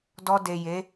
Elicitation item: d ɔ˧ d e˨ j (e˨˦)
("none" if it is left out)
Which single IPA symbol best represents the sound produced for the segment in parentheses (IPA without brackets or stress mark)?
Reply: e˨˦